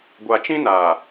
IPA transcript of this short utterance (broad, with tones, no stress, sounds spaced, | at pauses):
ɡʷ a˨ t͡ʃ ĩ˦ n aː˨